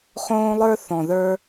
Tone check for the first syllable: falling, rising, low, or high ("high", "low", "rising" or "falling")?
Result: high